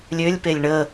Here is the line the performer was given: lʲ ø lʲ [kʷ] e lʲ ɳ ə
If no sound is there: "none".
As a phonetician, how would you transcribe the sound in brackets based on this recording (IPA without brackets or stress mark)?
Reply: p